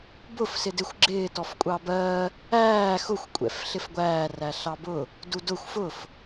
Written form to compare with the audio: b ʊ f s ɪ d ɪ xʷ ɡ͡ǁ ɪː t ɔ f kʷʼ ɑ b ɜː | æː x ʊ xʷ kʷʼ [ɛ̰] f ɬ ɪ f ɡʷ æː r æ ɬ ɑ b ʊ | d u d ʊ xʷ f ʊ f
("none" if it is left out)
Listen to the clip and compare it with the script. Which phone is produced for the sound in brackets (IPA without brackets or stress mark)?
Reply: ɛ̰